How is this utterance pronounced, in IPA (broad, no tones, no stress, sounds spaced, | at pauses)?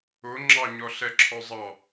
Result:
ʊ ŋ͡ǁ ɑ ɲ ɔ ɬ ɛ ǁʰ ɔ zˤ ɑ